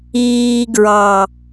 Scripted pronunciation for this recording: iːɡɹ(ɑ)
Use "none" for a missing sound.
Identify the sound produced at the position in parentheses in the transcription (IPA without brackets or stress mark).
ɑ